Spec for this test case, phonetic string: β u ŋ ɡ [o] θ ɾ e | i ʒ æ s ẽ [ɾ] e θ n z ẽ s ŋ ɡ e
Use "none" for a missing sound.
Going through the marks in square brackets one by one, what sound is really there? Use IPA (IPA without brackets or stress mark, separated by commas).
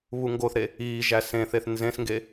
o, θ